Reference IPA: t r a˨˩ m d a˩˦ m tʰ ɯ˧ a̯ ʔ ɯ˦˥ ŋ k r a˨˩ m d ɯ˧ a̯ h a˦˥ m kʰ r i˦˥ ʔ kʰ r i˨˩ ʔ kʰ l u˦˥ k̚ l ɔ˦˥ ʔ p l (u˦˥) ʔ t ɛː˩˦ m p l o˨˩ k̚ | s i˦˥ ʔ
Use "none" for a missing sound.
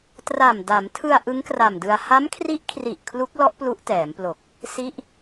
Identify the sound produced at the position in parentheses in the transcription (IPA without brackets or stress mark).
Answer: u˦˥